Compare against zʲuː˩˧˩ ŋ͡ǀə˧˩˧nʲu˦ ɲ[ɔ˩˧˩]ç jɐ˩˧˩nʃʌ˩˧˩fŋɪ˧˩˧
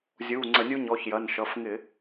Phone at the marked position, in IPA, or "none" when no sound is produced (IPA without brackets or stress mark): ɔ˩˧˩